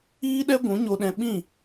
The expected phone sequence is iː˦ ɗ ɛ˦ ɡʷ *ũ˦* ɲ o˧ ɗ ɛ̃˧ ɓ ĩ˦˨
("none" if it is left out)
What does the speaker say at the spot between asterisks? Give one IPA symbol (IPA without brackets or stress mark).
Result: ũ˨˦